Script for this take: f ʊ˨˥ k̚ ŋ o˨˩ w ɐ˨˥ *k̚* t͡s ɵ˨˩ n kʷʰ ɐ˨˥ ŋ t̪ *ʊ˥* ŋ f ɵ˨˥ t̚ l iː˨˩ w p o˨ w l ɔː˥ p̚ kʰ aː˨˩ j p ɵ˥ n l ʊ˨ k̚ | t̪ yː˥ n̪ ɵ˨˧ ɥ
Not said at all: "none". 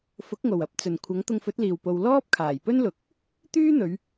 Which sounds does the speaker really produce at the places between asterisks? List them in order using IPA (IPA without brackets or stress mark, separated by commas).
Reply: p̚, ʊ˧